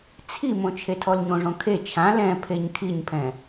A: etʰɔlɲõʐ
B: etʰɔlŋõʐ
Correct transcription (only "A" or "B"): A